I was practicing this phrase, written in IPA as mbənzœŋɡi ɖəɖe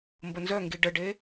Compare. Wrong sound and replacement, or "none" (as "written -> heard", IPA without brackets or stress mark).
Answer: none